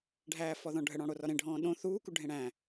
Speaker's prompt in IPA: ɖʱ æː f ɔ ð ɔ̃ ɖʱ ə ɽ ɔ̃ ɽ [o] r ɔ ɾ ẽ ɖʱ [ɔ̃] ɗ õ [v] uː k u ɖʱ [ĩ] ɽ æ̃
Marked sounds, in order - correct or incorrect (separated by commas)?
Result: correct, incorrect, incorrect, incorrect